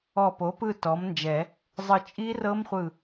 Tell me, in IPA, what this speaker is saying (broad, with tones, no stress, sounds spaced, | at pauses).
ɔ˧˩ p o˩˥ p ɯ˥˨ t ɔ˩˥ m n d͡ʒ ɛ˨˩˦ | zˤ ɯ˧˩ t͡ʃʼ i˦˥ r ɤ˦˥ m χʷ ɯ˧˩